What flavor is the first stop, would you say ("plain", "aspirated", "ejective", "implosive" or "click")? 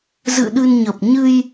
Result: implosive